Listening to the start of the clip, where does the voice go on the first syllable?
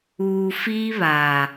low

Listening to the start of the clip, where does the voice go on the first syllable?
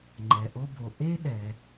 low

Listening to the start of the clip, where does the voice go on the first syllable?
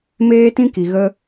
high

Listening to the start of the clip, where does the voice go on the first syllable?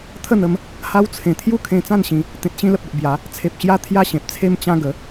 falling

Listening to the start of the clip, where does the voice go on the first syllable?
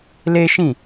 high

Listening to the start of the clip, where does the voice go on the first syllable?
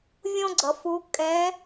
high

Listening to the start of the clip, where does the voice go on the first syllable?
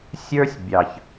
high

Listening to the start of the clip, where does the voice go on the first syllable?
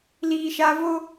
low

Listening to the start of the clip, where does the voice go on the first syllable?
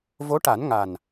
rising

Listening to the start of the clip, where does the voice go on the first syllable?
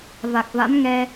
low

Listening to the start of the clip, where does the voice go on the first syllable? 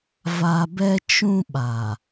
low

